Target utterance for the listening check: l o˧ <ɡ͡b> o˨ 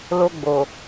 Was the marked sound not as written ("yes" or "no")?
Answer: no